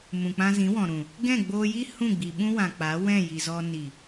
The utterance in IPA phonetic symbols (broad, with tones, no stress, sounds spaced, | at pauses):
m ũ˨ k͡p ã˧ z ĩ˨˦ w ɔ̃˨ ɾ ũ˨ | ɡ ɛ̃˦˨ ɡ͡b oː˧ j i˦ h ũ˦˨ ɡ͡b i˨ ɓ ũ˦ w ã˨ k͡p a˨˦ w ɛ̃˦˨ j i˨ z ɔ˧ n i˨